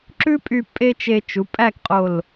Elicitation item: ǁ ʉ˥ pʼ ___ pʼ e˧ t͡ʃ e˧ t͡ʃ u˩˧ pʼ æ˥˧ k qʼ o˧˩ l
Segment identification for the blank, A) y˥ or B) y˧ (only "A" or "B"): B